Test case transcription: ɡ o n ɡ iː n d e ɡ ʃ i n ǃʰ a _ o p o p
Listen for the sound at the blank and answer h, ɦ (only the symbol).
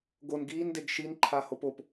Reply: h